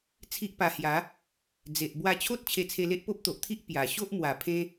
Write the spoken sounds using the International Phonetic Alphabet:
t͡sʰi˦ʔpa˧hja˨˦ | d͡ze˨ʔ bwa˧t͡ɕʰo˦t̚ t͡ɕʰe˧t͡sʰe˧le˦ʔ po˦p̚t̪o˨ʔt̪ʰi˦ʔ pja˨˩ ɕo˦ʔmwa˨˩ pʰẽ˧

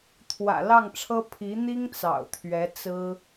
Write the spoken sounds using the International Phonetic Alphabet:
t̪ʰwä̰˨˩lɑ˥˩ŋʈ͡ʂʰɤ˥ pʰi˧˥ n̪i˥ŋ t͡sɑ̰˨˩ʊ̯t̪ʰɥɛ˧˥t͡sɹ̩˥

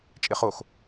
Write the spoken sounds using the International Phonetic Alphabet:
t͡ʃʼɪχox

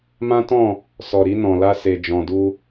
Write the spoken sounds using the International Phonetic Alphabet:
mã˦tɔ̃˦˨ | sɔ˨ɾi˧ nɔ̃˨la˧se˨ d͡ʒɔ̃˨du˧

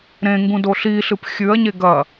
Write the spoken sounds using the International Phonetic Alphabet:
ɾẽŋɡũ doɬiɬɨp xʲʉɐ̯ɲe ɡɐ

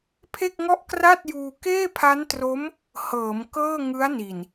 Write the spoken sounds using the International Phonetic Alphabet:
pʰe˥˩k̚ŋɔ˥˩ʔ kra˥˩t̚juː˧ keː˥˩pʰa˦˥ntro˦˥m | hɤː˩˦mkɤː˥˩ ŋɯ˦˥a̯ni˨˩n

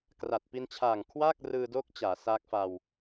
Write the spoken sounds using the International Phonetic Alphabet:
kra˨˩t̚pi˧nt͡ɕʰaː˨˩ŋ kʰwaː˥˩k̚rɯː˧do˦˥k̚ t͡ɕaː˩˦sa˦˥k̚fa˧w

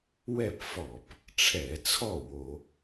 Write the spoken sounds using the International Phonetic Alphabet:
wɛ˥˩pfɔ˧˩˧p | ʈ͡ʂʰɛ˧˩˧t͡sʰɔ˥˩ wo˧˩˧

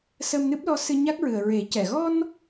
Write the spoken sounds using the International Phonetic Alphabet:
sə˧mnɨ˦˥p̚lɔ˧˥sɨ˧ ɲa˦˥k̚ɹɨ˨˩ə̯ɹe˨˩˦cɛ˨˩˨ ɣɔ˧n

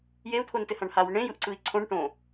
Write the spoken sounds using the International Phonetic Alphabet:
jeu̯t̪ʰontɘhãɳ hawʊ ɳẽjɯʔǀɯi̯ ǀʰõɳ ʈõ

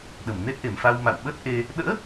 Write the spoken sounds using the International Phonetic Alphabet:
ɗə˧˩mne˦˥t̚ ʔe˧˩mfa˧w ma̰˧˨wɓə˦˥t̚ʔe˧ | ɗə̰ː˧˥

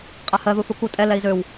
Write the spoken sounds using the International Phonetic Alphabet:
qʼɛhɜðu θuku tʼɛ lɛi̯zøw

